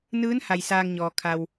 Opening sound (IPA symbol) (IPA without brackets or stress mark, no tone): n